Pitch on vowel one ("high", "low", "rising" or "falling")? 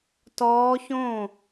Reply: rising